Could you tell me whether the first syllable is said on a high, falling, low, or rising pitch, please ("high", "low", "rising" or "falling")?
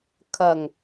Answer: low